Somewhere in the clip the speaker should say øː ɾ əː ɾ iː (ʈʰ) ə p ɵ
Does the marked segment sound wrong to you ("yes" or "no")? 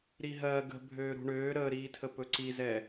yes